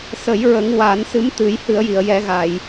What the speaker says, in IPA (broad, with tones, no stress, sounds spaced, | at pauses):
s ə˨˩˦ j ɹ ə˨˩˦ ŋ w a˨˩˦ n s ɨ˧˥ m t̪ ɨ˨˩˦ j h ɨ˨˩˦ ə̯ j i˨˩˨ ə̯ j ɛ˨˩˦ ɣ a˨˩˨ j